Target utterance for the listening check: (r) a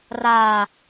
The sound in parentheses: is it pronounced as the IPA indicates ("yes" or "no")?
yes